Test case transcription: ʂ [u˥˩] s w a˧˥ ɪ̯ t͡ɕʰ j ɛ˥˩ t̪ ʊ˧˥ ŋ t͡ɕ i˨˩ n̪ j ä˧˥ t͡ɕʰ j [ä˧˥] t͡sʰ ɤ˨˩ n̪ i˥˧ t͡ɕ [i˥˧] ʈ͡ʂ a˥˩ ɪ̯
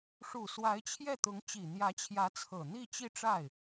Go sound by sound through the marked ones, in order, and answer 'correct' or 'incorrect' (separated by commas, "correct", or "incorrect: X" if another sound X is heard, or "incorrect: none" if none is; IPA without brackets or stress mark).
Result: incorrect: u˨˩, correct, correct